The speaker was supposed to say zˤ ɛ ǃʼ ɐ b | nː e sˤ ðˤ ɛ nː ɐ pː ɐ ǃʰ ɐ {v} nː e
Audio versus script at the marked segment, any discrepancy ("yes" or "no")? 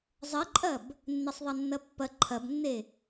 yes